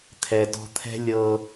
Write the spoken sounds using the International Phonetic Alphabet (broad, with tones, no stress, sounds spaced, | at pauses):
t̪ʰ ɛ˨ d ɔ̤˧ t̪ʰ ɛ̤˦ lʲ ɤ˧